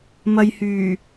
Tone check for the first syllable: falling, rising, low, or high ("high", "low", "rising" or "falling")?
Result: low